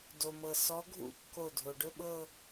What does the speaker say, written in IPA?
do˩mɤ˩sɔ˨˦ɡʱṵ˦˥ kːo˧˩dʱo˩ɖɵ˥˧ɓɤ˥˧

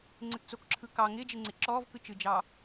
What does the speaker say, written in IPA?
ŋ͡ǀɪtt͡sokǁʰɯ kɑ ŋɪːd͡ʒɪŋ͡ǀɪ ǁɔːvkɯ t͡ʃɯd͡ʒɑ

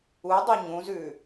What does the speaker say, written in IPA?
udˤo ɲũzʉ

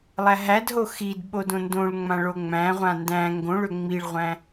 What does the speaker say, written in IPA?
lˠæɦædɦo xid ɓodõndõɭŋ͡mã ɭoŋ͡mæ̃ʁʷã ndæ̃ ŋɡõɭø ŋ͡miɭʁʷæ̃

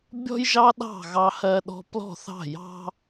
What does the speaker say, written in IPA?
bʲɔ̤˥jʒɑ˥ɗɑ̤˥˨ ɣɑ˥hɜ˥ɗɔ̤˥ plɔ̤˥˨θɑ̤˥˨jɑ̤˥

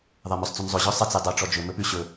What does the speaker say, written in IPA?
ðˤɛmœsˤt͡sʉnzˤɵ ʑœsˤɛt͡s edˤœ ʈ͡ʂɔd͡ʒɵ mɵpʉ ɕɵ

